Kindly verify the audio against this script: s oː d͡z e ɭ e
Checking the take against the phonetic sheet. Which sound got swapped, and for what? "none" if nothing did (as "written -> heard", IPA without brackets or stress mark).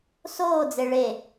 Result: none